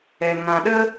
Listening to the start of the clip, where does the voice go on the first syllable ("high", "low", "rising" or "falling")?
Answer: low